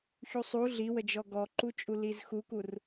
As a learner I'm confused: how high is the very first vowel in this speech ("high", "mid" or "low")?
high